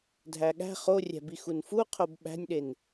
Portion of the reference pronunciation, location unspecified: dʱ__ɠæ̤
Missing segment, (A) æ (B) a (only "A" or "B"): A